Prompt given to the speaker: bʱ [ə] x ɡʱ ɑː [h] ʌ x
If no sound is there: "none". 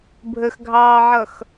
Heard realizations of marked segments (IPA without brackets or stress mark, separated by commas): ə, ʕ